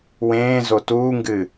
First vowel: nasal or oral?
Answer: nasal